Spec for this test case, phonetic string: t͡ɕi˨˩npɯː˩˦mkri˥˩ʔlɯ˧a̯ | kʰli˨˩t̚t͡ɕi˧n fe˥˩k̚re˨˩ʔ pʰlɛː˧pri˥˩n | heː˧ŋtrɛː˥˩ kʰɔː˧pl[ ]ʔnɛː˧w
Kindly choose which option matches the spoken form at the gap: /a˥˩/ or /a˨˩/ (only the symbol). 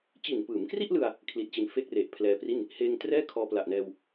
a˨˩